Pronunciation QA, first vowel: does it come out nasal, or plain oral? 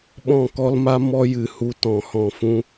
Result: nasal